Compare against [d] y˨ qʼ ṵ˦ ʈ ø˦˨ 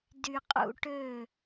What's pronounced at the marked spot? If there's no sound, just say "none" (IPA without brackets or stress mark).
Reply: d